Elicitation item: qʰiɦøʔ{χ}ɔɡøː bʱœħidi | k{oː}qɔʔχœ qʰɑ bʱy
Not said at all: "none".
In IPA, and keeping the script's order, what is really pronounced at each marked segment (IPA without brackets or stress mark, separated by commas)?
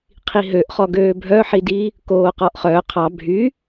χ, oː